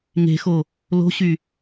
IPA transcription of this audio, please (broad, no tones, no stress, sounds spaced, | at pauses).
ŋ e̤ x o | l o̤ ɕ y